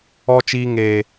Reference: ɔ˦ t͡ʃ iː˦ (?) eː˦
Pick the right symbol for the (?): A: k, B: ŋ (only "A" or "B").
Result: B